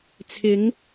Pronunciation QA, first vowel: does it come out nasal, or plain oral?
oral